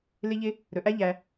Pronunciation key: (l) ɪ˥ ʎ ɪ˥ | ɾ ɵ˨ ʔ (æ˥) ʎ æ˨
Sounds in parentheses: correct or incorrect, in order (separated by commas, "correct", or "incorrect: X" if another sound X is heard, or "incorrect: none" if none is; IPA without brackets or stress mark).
correct, correct